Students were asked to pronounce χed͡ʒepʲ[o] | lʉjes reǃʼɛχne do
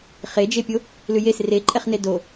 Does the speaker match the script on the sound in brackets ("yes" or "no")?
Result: yes